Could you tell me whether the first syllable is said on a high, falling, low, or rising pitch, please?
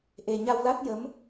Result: low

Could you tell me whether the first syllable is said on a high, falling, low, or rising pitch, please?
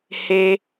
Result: high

